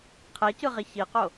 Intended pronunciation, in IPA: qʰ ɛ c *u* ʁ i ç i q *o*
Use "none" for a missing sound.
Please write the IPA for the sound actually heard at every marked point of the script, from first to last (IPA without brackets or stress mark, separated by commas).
ɯ, o